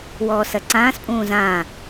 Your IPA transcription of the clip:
w ɔː s ɐ ǀ ãː s pʼ ũː z ãː

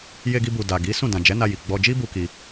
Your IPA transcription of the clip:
j e˧ ɡ i˧ b u˨ d a˨ ɡ i˨˦ s ũ˦˨ d ã˨ d͡ʒ ɛ˨˦ n a˧ j i˨ ɡ͡b ɔ˧ d͡ʒ i˦ b u˦ k i˧

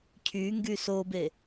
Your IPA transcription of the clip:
cʰ y ŋ ɡ y s o b e

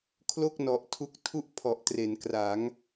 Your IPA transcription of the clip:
kʰ l o˥˩ k̚ n ɔ˨˩ ʔ tʰ u˦˥ k̚ tʰ u˥˩ ʔ pʰ ɔ˨˩ ʔ t r e˩˦ n k r a˩˦ ŋ

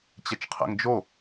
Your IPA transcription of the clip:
t͡ɕ ɛ t͡ʃ qʰ ɛ̰ ŋ d͡ʒ o

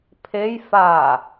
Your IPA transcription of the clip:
pʰ e j f a

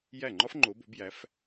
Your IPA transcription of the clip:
j æ˥˩ ŋ͡ǃ ɒ˥ f ŋ͡ǃ o˨˦ b o̤˨˦ b j æ˨˦ f

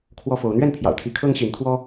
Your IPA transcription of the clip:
kʰ w ɔ˦ f o˨˦ ʊ̯ n̪ ɥ ɛ˥˨ n pʰ j ɑ̰˨˩ ʊ̯ t̪ʰ i˨˦ kʰ ɤ˦ ŋ ɕ i˨˦ n t̪ʰ w ɔ˦

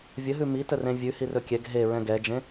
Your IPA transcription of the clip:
vʲ ə ɦ ʉ m i t ə r ẽ vʲ ʉ h i r ɵ kʲ ɛ ɡ ɦ e ɹ ɛ̃ ɡ ɛ d͡ʒ ẽ

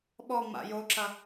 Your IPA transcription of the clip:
ɓ ɔ ŋ͡m a̰ j o ǁ ɐ

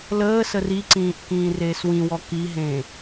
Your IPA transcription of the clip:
l əː s ə r i ǀ ĩː ʔ k ĩː r eː s w ĩ w ɔ k i ɦ ẽː

